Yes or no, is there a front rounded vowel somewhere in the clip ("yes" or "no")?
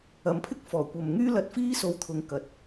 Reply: yes